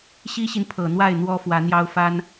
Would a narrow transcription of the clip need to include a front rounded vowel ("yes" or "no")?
no